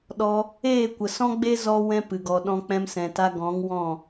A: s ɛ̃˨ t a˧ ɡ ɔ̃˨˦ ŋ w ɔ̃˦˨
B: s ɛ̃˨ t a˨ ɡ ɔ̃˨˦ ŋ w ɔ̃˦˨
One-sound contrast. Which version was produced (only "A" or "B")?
A